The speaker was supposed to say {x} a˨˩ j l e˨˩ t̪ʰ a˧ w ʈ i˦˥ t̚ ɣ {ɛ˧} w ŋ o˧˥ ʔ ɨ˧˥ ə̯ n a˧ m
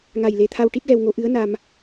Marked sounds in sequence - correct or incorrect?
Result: incorrect: ŋ, correct

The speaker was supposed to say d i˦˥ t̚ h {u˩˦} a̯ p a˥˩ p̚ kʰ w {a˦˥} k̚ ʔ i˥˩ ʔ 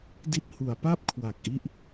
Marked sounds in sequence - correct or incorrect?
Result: correct, incorrect: a˨˩

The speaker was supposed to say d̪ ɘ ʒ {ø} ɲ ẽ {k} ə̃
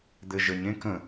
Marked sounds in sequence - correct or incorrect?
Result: incorrect: ə, correct

